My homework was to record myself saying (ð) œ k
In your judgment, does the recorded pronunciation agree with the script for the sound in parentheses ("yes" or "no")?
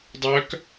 no